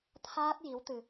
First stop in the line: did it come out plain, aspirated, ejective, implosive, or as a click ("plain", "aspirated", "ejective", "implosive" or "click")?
aspirated